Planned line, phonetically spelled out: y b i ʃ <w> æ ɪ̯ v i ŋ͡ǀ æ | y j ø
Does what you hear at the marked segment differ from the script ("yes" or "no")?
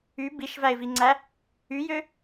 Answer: yes